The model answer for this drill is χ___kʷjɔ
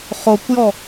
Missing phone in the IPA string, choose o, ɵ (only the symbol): o